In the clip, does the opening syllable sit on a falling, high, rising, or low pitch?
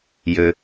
low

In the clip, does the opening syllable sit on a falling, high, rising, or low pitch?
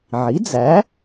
rising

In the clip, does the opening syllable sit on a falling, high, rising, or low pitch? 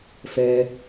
low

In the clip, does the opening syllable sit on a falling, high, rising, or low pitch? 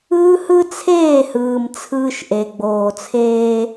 high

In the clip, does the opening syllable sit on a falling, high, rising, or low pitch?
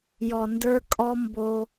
low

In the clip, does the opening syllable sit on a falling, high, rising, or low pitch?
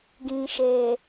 low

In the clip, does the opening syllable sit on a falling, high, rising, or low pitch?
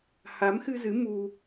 rising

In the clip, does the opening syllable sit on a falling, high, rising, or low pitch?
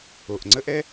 low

